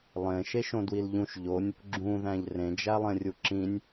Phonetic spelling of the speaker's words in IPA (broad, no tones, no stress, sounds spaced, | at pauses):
lˠ ẽ ʃ e ʃ õ d w i l ʎ ũ ʃ ʎ o nʲ | ɡ͡ǁ ũ ð æ̃ ʎ r ẽ d͡ʒ æ lˠ ẽ rʲ u ǁ ĩ nʲ